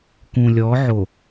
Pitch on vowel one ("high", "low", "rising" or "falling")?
low